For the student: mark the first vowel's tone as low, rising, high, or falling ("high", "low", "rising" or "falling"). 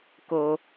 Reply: low